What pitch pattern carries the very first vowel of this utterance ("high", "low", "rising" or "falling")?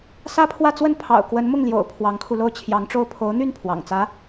high